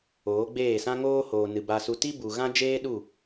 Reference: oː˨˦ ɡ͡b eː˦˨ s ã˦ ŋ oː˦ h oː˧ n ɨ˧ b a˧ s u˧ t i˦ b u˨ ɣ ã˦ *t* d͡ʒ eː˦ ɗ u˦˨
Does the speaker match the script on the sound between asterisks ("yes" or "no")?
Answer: no